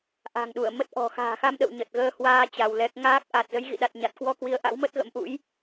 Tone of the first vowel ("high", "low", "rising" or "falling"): low